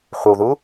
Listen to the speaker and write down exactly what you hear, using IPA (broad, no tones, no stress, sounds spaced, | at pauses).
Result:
χʷ ə w ð u